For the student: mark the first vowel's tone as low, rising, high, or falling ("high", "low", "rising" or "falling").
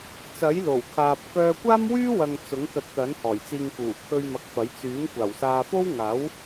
rising